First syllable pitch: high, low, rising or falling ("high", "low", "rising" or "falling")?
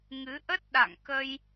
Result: rising